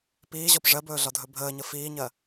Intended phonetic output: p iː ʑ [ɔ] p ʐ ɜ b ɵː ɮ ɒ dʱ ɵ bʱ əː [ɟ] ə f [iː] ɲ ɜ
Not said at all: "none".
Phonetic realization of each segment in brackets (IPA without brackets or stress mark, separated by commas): ɔ, ɲ, iː